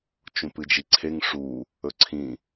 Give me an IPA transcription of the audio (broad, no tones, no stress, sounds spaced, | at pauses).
t͡ʃ ũ p ɨ d͡ʒ i ǀʰ e ŋ ʂ u | ɵ ǀʰ ĩ